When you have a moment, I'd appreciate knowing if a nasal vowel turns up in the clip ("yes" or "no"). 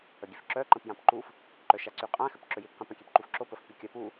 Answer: yes